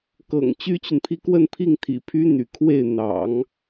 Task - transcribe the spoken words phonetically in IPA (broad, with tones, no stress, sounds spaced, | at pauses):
k ɤ̰˨˩ ŋ t͡ɕ y˥ t͡ɕ y˨ n pʰ i˥ k w ə˥˧ n pʰ i˥˩ ŋ t̪ʰ ḭ˨˩ pʰ y˥ n̪ y̰˨˩ kʰ w e˥˩ ɪ̯ n̪ ɑ̰˨˩˦ ŋ